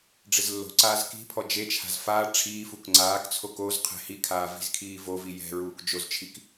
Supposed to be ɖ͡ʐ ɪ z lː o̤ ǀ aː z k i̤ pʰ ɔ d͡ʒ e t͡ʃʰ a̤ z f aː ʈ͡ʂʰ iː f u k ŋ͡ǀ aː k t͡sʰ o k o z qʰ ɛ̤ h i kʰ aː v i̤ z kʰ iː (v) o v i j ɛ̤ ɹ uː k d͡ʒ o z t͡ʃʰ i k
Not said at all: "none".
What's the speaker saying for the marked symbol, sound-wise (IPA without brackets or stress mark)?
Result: v